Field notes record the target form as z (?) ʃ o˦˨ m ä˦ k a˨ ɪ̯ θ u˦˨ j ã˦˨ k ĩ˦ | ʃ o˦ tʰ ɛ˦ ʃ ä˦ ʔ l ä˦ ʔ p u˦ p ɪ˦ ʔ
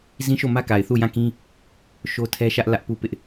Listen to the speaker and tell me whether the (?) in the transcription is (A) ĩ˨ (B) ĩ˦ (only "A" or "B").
B